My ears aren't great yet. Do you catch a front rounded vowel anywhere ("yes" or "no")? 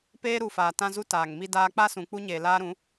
no